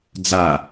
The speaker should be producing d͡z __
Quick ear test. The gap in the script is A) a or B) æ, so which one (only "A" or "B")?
A